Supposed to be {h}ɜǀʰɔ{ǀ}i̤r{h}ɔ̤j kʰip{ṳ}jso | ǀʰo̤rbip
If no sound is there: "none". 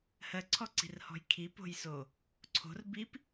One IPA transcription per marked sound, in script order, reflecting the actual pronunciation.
h, ǀ, h, o̤

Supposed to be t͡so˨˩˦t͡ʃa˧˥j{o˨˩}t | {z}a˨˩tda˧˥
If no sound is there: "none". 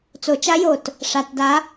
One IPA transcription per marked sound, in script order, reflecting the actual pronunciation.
o˨˩, ʂ

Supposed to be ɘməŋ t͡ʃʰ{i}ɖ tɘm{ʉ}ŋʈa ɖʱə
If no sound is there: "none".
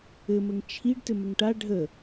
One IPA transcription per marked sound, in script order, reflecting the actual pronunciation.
i, ɘ

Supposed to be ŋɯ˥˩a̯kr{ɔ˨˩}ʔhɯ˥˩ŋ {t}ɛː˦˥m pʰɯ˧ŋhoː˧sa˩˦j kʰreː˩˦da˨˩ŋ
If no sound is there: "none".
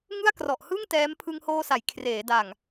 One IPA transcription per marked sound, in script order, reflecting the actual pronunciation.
ɔ˨˩, t

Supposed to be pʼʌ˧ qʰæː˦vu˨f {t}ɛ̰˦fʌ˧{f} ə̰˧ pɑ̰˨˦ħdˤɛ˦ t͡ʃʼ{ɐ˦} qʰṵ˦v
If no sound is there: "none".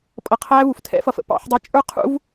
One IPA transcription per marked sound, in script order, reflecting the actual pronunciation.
tʰ, f, ə˞˦

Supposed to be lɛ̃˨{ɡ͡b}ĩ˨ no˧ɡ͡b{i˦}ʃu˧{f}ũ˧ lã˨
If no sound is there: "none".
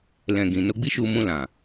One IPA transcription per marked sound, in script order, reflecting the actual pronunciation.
ɡ, i˦, m

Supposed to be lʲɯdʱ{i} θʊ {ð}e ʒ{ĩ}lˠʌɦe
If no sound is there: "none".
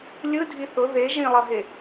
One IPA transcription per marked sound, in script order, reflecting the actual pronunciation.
i, ð, ĩ

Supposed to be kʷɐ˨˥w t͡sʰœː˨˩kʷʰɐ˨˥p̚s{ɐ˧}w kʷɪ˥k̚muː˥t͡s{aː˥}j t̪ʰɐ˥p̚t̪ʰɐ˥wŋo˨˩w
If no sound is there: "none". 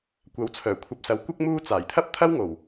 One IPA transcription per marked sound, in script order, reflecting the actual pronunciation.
ɐ˨˥, aː˨˩

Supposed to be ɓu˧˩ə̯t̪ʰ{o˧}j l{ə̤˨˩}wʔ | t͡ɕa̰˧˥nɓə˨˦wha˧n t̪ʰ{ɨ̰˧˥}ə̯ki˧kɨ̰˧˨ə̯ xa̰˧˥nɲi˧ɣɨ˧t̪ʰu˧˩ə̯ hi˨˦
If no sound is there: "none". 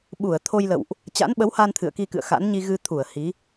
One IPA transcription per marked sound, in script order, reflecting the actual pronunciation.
o˧, ə̰˧˨, ɨ̰˧˨

